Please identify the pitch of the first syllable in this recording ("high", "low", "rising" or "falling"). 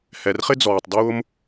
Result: low